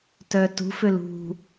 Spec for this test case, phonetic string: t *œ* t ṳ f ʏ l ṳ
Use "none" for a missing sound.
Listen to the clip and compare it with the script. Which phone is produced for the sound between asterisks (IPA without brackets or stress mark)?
œ